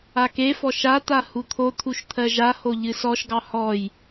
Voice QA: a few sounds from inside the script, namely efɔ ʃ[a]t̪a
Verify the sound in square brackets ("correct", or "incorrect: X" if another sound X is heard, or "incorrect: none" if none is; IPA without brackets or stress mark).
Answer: correct